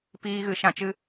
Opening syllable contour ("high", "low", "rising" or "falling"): high